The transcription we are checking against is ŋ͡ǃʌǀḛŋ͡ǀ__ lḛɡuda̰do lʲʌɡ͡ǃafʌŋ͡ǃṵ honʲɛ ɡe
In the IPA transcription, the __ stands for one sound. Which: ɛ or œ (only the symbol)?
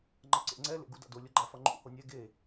ɛ